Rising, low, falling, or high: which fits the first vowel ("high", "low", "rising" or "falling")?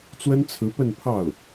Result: high